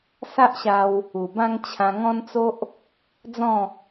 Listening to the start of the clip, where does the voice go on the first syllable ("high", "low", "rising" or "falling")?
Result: high